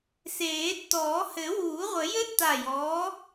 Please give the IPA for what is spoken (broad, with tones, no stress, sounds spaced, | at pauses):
s eː˨˩˦ tː ɔː˨˩˦ h ɘ˨˩˦ w uː˨˩˦ ʁʷ ɘ˨˩˦ j ɘː˥ tː a˧˩ j ɔː˨˥